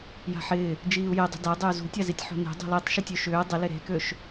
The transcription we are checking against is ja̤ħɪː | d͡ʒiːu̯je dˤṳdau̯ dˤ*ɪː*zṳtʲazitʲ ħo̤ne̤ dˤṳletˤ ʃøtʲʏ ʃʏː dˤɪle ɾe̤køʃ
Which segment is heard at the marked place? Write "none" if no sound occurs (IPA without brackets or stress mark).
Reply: ʏː